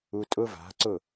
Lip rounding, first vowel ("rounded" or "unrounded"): rounded